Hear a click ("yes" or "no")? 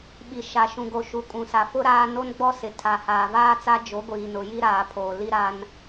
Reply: no